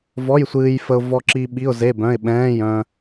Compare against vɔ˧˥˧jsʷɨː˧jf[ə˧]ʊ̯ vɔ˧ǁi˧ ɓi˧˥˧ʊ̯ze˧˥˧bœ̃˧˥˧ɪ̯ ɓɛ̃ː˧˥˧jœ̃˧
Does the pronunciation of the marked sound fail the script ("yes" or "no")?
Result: no